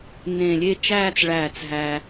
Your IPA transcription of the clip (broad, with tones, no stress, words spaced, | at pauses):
nẽ˧˩ lʲe˥˧t͡ʃæː˥˧t͡sɭæː˧˩t͡s ɦæ˧